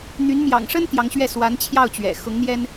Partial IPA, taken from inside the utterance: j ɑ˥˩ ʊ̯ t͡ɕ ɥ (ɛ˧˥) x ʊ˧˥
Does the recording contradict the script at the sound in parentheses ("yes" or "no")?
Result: yes